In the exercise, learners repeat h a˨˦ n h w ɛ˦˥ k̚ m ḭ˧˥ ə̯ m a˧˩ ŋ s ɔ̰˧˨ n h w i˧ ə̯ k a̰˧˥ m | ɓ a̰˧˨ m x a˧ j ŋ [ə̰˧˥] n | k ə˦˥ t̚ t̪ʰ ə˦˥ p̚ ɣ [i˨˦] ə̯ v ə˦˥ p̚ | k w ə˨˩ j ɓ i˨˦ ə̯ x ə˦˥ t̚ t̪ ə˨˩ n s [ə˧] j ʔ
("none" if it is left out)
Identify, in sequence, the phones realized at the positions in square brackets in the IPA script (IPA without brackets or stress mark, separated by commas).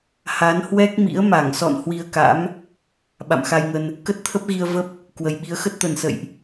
ə˧, i˧, ə̰˧˨